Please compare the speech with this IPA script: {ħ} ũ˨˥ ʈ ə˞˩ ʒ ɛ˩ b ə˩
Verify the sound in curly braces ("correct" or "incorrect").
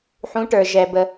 correct